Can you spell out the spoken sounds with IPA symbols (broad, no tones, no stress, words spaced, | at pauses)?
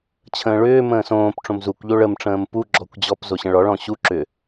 t͡ɕʰə̃ːɭʏː mə̃ːsõːpʈ͡ʂõm zukʷʎo ɭəmʈ͡ʂə̃ːm pu ɡ͡ǁɔkʷd͡ʑɔp zoɕə̃ɭɔɭ ɔ̃ɕu ǁʏ